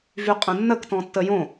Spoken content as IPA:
v y qʼ ə̃ nː ə k t ɔ̃ tː ə j õ

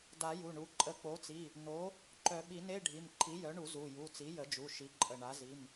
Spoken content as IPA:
d a˨˩˦ j u˩˧˩ ɳ u˩˥ ǃʼ ə˧˩ k͡p o˩˥ t͡s i˩˧˩ | n o˩˥ | ǃ œ˨˩˦ ɓ i˨˩˦ n e˧˥˧ ɖʱ i˩˧˩ m ǃʰ i˩˥ j œ˩˥ ɳ u˨˩˦ z u˩˧˩ j u˩˧˩ t͡s i˩˥ j ə˨˩˦ d͡ʒ u˩˧˩ ʃ i˩˥ ǃʼ ə˧˩ ɳ a˩˥ z i˩˧˩ m

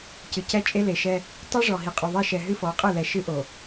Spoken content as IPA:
c ɨ˨ c ɛ˦ t͡ʃʼ e˦ l e˨ ʃ ɛ˦ | tˤ i˦ ʐ ɔ˨ ɦ i˨ qʼ o˨ ðˤ e˦ ʃ ɛ˨ ɦ ɨ˦ f ɔ˨˦ qʼ ɨ˦˨ l ɛ˨ ʃ ɨ˦ ʔ o˨

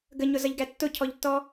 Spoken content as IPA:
ɡ ə ɲ ʊ z ʌ ʎ ɡ æ tː ʊ cʰ ɔ ʎ tː ɔ

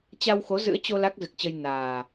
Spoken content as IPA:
t͡ɕ a˧ w x o˨˦ z ɨ̰˧˥ ə̯ t͡ɕ o˧ l a˦˥ k̚ z ɨ˨˩ k̚ t͡ɕ ə˧ j n aː˨˩

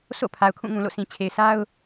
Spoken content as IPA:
sʰ o̰˦˨ pʰ a˨ ʊ̯ kʰ ũ˦˨ ŋ ũ˨ l o̰˦˨ sʰ ĩ˨ t͡ɕʰ e˨ ɪ̯ s a˦ ʊ̯

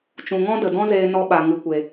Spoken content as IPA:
t͡ʃ ũ˨ ŋ ɔ̃˦ d ə˨ d ɔ̃˦ z eː˧ n ɔ˧ ɓ a˨ ŋ ɨ˨ kʷ e˨

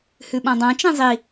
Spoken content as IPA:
h ʉ ɓ ã dˤ ã t͡ʃ ẽ zˤ i

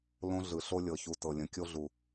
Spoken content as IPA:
l õ˦ ɮ ɯ˨ ɬ o˦ lʲ ɤ˨ ç u˨ t ɤ˨ lʲ ə̃˨˦ kʲ o˦ ɮ u˨

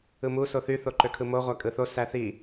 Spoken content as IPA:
ɯ m u s o θ y θ o ǃ ø kʰ ɯ m o ʁʷ æ kʼ ɯ θ o s æ θ i

